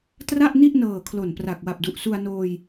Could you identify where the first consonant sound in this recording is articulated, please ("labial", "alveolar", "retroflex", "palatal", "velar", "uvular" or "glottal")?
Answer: alveolar